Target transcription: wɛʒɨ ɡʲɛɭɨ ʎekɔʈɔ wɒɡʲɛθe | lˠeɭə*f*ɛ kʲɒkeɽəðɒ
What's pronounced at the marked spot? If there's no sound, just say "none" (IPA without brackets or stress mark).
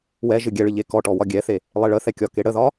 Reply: θ